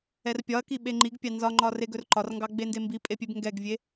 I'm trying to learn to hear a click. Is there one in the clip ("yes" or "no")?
yes